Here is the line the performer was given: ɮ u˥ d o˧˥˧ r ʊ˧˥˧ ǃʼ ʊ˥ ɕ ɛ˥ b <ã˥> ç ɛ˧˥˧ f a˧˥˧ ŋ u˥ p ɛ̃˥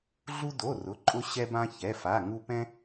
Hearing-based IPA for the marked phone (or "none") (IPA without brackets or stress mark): ã˥